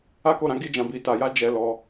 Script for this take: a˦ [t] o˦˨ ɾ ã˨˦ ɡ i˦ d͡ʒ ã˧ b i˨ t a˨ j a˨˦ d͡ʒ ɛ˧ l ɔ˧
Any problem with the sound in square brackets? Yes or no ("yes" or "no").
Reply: yes